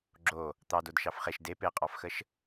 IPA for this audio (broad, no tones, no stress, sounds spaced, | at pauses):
ɡ͡ǁ o | t̪ ɑ d o d ʃ ɑ f χ e ʃ d e p e qʼ ɑ f x ə ʃ